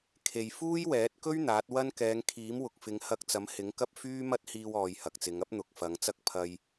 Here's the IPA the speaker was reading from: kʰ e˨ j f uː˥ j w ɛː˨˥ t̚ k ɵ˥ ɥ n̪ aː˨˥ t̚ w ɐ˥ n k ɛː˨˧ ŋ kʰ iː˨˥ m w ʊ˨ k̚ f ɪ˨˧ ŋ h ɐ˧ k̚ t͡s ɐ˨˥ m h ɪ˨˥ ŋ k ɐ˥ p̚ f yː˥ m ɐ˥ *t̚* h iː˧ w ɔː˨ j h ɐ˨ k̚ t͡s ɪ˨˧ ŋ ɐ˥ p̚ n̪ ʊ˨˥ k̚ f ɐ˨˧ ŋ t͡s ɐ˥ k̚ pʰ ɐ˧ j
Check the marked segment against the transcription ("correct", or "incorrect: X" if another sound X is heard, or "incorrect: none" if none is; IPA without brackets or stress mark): correct